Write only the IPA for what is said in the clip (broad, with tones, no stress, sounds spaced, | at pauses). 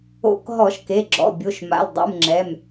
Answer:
o̰˧˩˧ k ɦ ɔ˧˩˧ ʃ k e˩˧˩ ɡ͡ǁ ɔ̰˩˧˩ bʲ o˩˧˩ ʃ m a̰˩˧˩ l dˤ ṵ˩˧˩ m ŋ͡ǁ ɛ˩˧˩ m